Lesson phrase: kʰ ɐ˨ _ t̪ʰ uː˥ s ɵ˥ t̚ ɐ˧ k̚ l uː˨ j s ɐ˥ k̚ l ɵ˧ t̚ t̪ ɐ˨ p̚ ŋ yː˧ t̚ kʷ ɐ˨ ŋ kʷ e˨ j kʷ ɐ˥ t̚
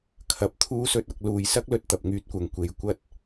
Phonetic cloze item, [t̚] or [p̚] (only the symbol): p̚